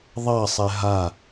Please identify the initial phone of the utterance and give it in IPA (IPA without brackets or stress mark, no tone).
ðˤ